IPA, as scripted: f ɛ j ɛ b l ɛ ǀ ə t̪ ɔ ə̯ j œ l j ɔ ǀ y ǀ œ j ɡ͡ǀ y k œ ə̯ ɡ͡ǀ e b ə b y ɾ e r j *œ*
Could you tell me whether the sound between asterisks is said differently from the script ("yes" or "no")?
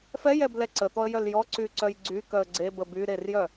no